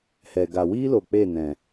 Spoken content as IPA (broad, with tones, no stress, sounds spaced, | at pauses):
h ɛ˨ ɡ a˨ w iː˦ l o˨ k͡p e˦˨ n ɛ̃˨